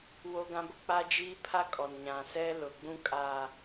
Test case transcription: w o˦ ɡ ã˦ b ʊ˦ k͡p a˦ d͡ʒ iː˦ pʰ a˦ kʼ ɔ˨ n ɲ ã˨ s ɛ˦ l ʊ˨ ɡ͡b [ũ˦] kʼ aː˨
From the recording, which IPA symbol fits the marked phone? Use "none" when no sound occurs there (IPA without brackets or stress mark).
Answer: ũ˦